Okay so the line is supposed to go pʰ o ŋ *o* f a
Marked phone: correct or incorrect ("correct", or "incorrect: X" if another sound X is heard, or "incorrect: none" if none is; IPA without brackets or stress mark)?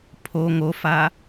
correct